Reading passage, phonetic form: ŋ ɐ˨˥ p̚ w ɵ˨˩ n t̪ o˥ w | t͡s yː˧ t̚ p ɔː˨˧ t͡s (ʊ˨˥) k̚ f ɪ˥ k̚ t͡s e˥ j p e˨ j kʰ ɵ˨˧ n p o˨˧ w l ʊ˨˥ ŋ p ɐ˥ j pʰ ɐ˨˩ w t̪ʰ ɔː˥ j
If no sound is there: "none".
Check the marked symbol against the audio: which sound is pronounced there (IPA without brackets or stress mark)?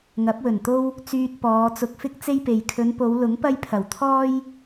ʊ˧